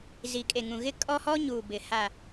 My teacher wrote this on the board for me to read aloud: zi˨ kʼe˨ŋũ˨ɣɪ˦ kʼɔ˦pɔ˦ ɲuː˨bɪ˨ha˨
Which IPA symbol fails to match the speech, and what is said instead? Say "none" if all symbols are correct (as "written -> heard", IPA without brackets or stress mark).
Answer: p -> h